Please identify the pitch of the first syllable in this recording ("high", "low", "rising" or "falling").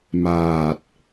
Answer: low